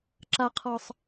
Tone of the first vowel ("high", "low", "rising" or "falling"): high